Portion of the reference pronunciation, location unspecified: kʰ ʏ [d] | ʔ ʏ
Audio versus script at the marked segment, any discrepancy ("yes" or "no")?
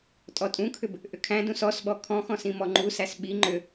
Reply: yes